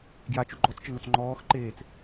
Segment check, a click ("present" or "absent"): present